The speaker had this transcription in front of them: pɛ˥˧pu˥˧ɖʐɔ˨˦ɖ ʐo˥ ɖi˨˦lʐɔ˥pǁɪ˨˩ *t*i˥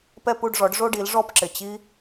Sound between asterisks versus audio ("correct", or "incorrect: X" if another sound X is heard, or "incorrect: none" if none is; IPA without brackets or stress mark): incorrect: t͡ɕ